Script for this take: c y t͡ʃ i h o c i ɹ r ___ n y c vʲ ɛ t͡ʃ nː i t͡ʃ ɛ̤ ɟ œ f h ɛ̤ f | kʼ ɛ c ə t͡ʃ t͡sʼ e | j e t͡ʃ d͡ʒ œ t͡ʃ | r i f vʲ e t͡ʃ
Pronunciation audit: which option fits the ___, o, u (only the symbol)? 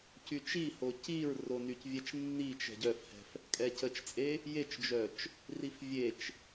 o